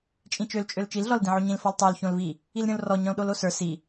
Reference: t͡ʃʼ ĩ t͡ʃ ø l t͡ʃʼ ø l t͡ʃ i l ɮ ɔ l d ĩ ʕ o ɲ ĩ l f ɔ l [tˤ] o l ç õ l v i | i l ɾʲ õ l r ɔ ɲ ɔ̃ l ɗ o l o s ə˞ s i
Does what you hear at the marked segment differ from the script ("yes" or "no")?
no